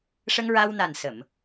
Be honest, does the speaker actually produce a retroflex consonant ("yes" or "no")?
yes